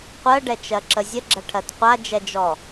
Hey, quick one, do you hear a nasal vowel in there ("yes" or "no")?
no